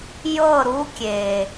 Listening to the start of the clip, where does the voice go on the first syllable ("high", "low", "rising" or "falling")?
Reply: falling